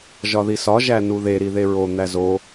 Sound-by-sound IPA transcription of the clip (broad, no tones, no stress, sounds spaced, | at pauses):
ʒ ɒ ð i s ɒ ʒ æ n u ð e ɾ i ð e ɹ o n̪ æ z o